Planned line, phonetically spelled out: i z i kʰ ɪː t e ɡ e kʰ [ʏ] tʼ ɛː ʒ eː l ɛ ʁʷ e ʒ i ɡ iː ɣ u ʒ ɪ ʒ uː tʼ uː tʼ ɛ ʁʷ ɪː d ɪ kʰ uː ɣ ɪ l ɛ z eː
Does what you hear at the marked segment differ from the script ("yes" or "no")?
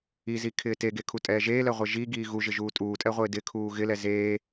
yes